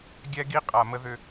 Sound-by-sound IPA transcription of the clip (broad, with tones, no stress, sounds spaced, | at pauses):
ɡʲ ɛ˦ ɡ i˦ qʼ a˨ m ə˦ ð ʏ˦